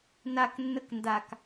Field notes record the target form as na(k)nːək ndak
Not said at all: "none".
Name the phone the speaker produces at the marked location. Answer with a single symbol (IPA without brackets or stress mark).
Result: k